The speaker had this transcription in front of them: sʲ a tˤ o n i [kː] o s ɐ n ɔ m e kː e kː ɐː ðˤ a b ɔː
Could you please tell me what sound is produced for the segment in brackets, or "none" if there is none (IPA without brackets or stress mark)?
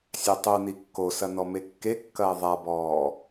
kː